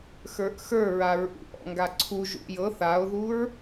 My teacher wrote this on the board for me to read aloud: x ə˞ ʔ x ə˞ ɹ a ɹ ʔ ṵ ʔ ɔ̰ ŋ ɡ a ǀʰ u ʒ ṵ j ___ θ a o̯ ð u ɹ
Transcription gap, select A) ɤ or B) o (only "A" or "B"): A